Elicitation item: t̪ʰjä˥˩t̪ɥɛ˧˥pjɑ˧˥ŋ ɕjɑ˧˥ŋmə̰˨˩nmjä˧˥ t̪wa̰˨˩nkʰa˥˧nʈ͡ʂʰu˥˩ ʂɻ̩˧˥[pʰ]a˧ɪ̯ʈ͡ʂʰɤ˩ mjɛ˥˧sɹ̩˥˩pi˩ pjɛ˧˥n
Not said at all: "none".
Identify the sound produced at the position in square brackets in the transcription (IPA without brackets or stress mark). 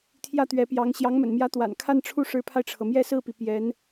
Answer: pʰ